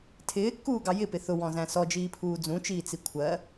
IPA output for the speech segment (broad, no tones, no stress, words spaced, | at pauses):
tʰɪːkːuːɡɑ jɪpɪ θʊwɔ̃zæ̃ sɔd͡ʒiːpʰuː d͡zũt͡ʃiːt͡si kʷʰɜ